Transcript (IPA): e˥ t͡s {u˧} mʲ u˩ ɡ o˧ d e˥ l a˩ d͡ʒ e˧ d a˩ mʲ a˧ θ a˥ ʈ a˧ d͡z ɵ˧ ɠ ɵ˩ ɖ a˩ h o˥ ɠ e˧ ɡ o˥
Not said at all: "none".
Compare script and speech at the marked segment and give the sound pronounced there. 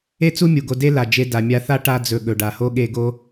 u˥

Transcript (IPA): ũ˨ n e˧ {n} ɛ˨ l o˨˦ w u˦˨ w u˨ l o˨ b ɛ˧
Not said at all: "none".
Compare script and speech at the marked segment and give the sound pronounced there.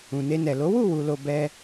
n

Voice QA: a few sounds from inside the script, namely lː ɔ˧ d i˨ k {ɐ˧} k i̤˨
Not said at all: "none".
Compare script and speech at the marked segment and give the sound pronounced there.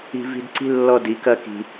ɐ˧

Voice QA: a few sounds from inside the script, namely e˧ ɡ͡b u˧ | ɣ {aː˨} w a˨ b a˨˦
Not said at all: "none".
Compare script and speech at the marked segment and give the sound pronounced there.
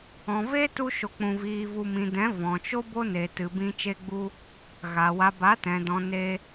a˨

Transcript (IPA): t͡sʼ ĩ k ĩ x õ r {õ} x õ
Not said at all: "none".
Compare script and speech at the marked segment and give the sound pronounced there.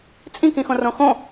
õ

